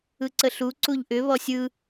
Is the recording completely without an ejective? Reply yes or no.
yes